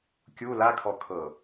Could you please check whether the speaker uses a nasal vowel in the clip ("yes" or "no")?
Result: no